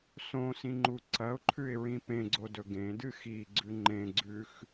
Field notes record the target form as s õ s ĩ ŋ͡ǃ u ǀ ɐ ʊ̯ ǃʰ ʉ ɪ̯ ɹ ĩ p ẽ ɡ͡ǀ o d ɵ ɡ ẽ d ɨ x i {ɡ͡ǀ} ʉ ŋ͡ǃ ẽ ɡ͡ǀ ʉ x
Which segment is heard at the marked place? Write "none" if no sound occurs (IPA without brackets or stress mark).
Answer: ɡ͡ǀ